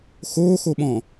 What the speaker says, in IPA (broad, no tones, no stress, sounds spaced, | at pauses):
x oː x o ɓ ɔ̃ː